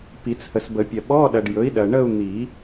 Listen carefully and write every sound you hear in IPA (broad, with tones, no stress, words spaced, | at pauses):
pi˨˩˦t͡shə˨sbə˨˩˦pʲɐ˨ ɓɔ˧˥˧ɗɐ˨ɖjɵ˩˥i̯ ɗɐ˨ ɳə˥˧u̯ n̪i˨˩˦